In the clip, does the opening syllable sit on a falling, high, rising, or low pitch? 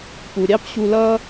low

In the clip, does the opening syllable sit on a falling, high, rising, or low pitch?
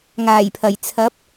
low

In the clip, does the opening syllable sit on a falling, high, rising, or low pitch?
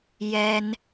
high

